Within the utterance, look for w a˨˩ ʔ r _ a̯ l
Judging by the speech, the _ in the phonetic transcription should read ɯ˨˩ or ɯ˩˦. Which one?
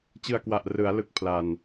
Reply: ɯ˩˦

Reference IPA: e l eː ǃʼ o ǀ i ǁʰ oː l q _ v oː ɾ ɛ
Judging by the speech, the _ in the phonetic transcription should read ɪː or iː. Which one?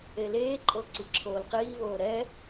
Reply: iː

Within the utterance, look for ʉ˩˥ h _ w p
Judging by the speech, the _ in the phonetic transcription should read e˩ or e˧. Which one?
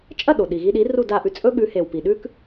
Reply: e˩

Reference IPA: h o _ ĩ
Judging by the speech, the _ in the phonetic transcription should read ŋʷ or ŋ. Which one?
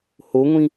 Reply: ŋʷ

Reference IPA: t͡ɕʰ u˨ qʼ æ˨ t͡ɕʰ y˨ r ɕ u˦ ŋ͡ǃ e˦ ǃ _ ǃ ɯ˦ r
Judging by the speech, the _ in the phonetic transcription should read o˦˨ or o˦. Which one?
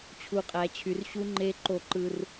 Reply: o˦˨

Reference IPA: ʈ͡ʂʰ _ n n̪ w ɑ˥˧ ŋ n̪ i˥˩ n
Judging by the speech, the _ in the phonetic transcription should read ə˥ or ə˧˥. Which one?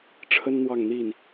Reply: ə˥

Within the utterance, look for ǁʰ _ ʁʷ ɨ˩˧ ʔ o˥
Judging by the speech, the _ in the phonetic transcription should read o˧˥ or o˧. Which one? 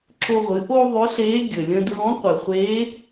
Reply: o˧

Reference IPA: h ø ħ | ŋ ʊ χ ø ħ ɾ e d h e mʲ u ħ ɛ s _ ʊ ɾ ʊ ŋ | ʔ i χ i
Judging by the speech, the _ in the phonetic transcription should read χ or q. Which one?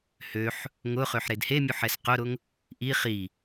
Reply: q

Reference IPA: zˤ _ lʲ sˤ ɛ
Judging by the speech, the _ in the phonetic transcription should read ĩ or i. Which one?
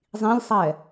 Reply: ĩ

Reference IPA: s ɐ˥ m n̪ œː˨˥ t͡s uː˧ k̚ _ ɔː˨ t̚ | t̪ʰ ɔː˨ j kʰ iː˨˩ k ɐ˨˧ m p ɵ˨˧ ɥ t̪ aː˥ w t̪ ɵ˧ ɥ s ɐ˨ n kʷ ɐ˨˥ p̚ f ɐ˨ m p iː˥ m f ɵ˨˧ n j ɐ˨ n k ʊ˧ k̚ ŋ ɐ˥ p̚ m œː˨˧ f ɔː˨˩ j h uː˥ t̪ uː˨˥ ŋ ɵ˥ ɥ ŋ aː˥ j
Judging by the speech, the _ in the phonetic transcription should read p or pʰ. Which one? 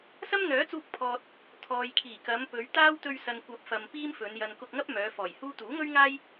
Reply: pʰ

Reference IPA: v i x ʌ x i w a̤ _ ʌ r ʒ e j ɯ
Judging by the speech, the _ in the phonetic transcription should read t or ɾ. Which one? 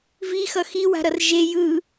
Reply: ɾ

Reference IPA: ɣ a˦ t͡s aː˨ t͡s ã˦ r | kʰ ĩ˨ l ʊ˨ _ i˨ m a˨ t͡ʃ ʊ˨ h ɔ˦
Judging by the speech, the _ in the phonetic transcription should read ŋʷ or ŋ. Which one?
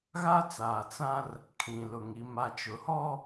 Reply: ŋ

